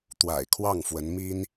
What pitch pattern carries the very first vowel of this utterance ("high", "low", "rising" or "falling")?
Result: low